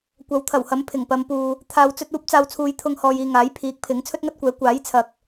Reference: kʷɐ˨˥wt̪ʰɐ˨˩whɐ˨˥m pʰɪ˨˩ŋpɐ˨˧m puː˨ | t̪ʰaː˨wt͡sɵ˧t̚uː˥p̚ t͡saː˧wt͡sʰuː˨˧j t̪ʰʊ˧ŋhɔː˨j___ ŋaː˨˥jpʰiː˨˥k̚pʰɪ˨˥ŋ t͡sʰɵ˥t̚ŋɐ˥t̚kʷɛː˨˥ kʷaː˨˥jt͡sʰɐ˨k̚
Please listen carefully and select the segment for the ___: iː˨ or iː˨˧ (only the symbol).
iː˨